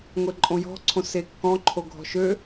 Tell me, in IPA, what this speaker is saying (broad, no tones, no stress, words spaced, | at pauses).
ŋʷeǃʼõjɔ̤ ǀʰõsekːɔ̃ ǃʰoɡʱɔ̤ʃø